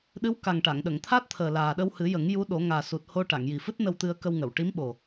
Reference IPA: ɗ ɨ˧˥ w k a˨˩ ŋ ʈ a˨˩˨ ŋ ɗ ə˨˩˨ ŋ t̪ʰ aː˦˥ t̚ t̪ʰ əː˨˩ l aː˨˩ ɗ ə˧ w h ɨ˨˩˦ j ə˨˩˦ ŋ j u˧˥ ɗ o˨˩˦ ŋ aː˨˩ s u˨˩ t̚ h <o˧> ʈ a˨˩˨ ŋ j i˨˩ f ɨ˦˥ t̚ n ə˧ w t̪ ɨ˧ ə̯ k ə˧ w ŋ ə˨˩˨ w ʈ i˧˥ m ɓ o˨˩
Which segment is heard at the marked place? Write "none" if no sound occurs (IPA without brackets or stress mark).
o˧